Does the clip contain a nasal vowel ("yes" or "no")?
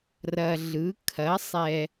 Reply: no